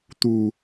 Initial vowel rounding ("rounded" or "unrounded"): rounded